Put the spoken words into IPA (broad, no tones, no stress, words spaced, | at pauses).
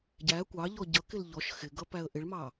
ɟæ kʷɑʎɔ ɟʌkɪl ʎɔʃ xɪɡʌpæə̯ ʔɪɭmɑ